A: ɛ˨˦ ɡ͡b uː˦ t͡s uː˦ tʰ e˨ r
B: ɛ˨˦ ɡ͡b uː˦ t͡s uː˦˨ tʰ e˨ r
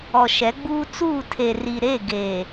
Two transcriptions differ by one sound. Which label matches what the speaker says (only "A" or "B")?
B